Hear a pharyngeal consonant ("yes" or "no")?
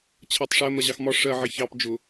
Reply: yes